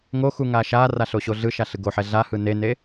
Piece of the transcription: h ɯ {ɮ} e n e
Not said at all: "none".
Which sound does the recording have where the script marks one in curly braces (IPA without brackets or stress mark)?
n